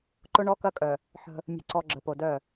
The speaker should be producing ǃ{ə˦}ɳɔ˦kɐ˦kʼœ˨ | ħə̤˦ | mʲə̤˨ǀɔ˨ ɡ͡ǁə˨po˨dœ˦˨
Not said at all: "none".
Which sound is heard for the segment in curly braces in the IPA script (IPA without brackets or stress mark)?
ʊ˦